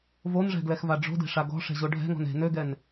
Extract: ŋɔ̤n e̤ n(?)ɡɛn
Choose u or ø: ø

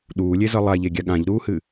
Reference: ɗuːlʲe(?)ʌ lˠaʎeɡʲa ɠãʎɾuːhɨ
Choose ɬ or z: z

